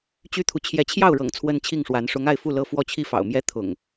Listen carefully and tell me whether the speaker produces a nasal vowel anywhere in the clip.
no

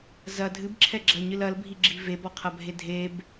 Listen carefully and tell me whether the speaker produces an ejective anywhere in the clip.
no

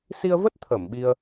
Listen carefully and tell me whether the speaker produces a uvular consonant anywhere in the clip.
no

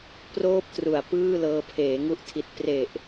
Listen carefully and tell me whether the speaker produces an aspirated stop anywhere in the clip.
yes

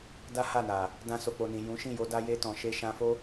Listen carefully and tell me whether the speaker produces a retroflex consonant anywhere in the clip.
no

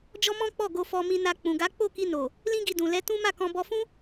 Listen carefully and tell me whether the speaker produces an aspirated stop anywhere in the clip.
no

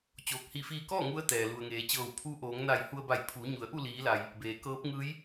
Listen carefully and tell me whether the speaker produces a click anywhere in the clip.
no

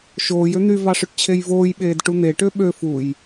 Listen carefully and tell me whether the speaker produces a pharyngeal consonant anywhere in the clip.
no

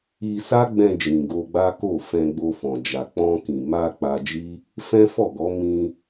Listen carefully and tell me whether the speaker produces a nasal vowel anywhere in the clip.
yes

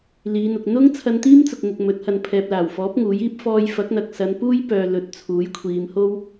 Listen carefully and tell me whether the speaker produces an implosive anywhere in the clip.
no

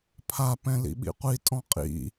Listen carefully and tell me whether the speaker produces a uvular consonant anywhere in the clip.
yes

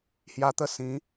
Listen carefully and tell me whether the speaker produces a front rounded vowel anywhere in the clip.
no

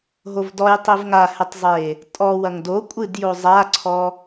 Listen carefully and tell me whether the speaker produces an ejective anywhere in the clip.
yes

